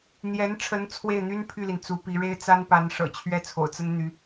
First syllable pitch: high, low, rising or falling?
rising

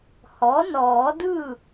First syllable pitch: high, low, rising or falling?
rising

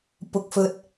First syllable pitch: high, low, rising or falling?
low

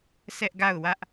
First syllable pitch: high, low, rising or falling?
high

